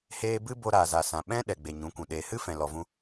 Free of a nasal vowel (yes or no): no